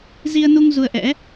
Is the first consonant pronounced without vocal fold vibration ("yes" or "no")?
no